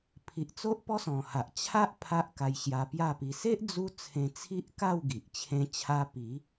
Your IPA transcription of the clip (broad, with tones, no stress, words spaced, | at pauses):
pʰi˨ʔ t͡so˦ʔpɔ˦sɔ̃˨˩ha˨ʔ t͡ɕʰa˦ʔ pʰa˦ʔka˧j ɕja˧pja˥˧pi˧ se˦ʔ d͡zu˦t͡sʰẽ˧t͡sʰi˦ʔka˥˧w ɡi˨ʔt͡ɕʰẽ˦t͡ɕʰa˦ pi˨˦